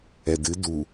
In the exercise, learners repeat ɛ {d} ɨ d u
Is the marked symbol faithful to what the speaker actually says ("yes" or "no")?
yes